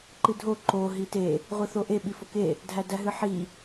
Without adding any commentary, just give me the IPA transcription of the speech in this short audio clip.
ǃɨdʱo ǃo ɦite | ʁʷɨθoʔe ɓifoke | dʱædæɦɨħi

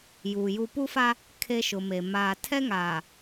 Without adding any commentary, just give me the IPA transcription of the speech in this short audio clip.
juː˨ju˦ pu˦fa˦ | kʰe˦ʃʊ˨me˨ maː˨tʰɛ˦ŋaː˨

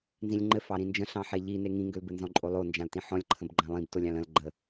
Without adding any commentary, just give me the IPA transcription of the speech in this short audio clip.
nzĩlʲŋ͡ǃɘ fɑɾĩnd͡ʒə̃ ɬɑ̃ħeʎine ŋĩŋɡʏlbɘ nzɔ̃ǃʼolˠo nd͡ʒãltĩħɔ̃lʲǃʰə̃b ɡ͡ǃãlˠĩbtolʲ ɑ̃lə̃l ɡ͡ǃə

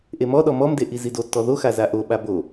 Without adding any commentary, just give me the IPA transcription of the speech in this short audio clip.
ʔemɔɗɔ mɔmde ʔizidotːɔ ðoxa zaʔoɓa bo

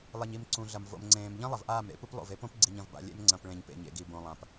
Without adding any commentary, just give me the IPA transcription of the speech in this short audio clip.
lˠe˨ɲi˨m ǀũ˨ɮɐ˨m vo̰˨mŋ͡ǀẽː˨m ʎɐ̃˦ lˠɐ˨vʔaː˦˨mɾḛ˦pu˦p lˠo̰˨ve˦põ˦pɡ͡ǀi˨ɲ ɐ̃˨vba̰˨ lʲḛ˦m ŋ͡ǀɐ̃˨p ɭẽ˨ɲpḛ˨ɲḛ˨ɡi˨ bõ˨lˠã˨p

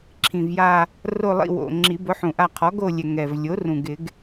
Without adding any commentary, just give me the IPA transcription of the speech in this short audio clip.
ǁʰĩ˨˩vja˦˨ | ro˦˨lˠḭ˦˨wo̰˨˩ ŋ͡ǁi˨˩˦ bʊ˩˥ħũ˨˩ʔa˦˨ qʰɔ˩˥ɡo˦˨lʲɛ˨˩ ŋɛ˨˩v lʲo˩˥rũ˨˩ɡɪ˨˩˦ɡ

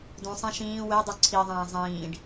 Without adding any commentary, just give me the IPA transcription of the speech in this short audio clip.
dũsˤẽ ʃĩː wedˤu ǀʰiðˤæ̃ː zˤĩːɖ

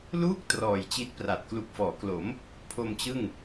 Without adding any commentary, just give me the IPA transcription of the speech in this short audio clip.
luː˥˩k̚ trɔː˨˩jt͡ɕi˦˥t̚pra˨˩t̚ klu˨˩k̚fɔː˩˦klo˩˦m | pʰo˧mt͡ɕɯ˥˩ŋ

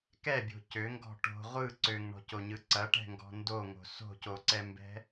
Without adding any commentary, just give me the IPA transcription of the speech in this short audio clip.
kɛbʲo̤ cøŋɡɔ̤ ʈo̤ ʁʷɯ ǀøŋɳɔ̤coɲɯ ǀɐʈɛ̤ŋɡɔ̤ ndoŋo̤ so̤coǀɛmbɛ̤

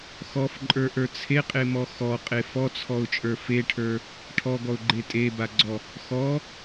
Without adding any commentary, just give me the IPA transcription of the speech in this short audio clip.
xɔfǃʼə˞ʔə˞ t͡sʰeqʼemɔ xɔqʼe fɔt͡sʰɔʊ̯t͡ʃʼə˞ feʈʰə˞ | ʈʰɔɡɔʊ̯ɡ͡ǃe tʼebaɡ͡ǀɔ | xɔ

